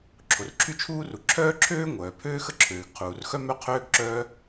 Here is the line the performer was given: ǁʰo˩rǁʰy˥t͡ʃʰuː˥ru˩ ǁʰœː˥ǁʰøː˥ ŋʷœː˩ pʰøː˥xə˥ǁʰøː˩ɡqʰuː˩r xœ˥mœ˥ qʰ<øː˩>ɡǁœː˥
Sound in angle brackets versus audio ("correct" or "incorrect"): incorrect